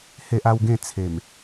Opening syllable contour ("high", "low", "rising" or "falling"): high